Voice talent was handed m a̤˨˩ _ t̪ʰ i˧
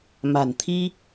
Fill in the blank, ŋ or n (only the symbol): n